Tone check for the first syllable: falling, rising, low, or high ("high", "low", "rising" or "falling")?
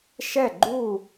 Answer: falling